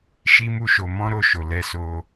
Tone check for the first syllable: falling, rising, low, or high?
high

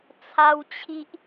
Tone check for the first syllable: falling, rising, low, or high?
high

